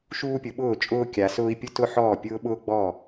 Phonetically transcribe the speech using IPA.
ʃ uː˥ pʲ ʊ˨˦ ɓ ʊː˥˨ t͡ʃʼ ʊː˥ kʲ a˨˦ s ʊː˥ i̯ pʲ ʊ˥ t ʊ˥ ħ ɔː˥˨ pʲ ʊː˥ ɓ ʊː˥ ɡ͡b ɔ˥˨

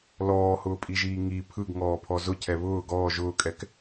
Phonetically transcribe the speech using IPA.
l ɔː h ʊː pʼ i ʒ iː ŋ i pʰ ɯ ɡ ŋ ɔː pʰ ɔ z ʊ cʰ ɛ β ʊː ɡ ɔː ʒ ʊː kʼ ɛ k

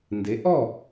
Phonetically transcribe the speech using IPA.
n d e˩˥ ʔ ɔ˥˩

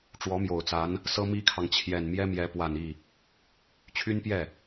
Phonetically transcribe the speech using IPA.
ʈ͡ʂ w ɔ˧˥ m j o˨˩ ʊ̯ t͡s a˧˥ n | s ɤ˥ m i˥ kʰ ɑ˨ ŋ t͡ɕʰ j ɛ˨˩ n m j ɛ˥ m j ɛ˧˥ p w a˨˩ n i˥˩ | t͡ɕʰ y˥ n p j ɛ˥˩

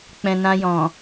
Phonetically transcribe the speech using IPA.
k͡p ɛ̃˨ n ã˧ j ɔ̃˨

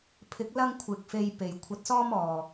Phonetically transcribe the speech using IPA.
pʰ ɪ˨˥ k̚ l ɐ˥ ŋ kʷʰ ɪ˨ k̚ f e˧ j p e˨˩ j kʷʰ ɐ˧ t̚ s ɔː˥ m ɔː˨˩

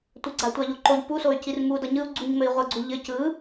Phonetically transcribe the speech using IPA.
tʷ ɘ ɡ͡ǀ a tʷ a ʎ o ǃ o ʎ p u s o y̯ c i r m u d ʌ ɲ ɯ u̯ ɡ͡ǀ u ɲ m ɘ i̯ ʁʷ ɐ ɡ͡ǀ u ʎ ɘ c ɯ

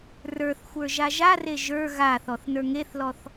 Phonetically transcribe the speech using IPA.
r ə˞ θ xʷ ə˞ ʒ a ʒ a r e ʒ ə˞ ɣ a θ ɔ θ n ə˞ ŋ e θ l ɔ θ

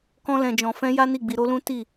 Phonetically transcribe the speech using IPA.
k ɔ̃˦ l ɛ̃˧ d͡ʒ ɔ̃˧ f ɛ̃˦ j a˦ n i˦˨ ɡ͡b i˧ ɾ o˦ l ũ˦ t i˦˨

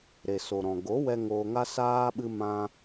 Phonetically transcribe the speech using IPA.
ɾ e˨ s o˨ ɾ ɔ̃˨ ɡ o˨˦ w ɛ˧ ŋ oː˧ ŋ a˦ s aː˦ ɓ ɨ˧ m ã˧

